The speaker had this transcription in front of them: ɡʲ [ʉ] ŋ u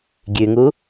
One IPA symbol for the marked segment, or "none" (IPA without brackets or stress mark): ʉ